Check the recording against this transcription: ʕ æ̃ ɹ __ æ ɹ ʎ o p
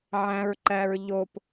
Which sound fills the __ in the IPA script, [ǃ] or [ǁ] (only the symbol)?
ǃ